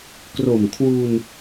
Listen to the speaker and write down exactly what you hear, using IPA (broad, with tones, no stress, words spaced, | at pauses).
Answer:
kro˨˩mkʰwu˧n